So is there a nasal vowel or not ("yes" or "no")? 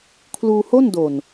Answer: no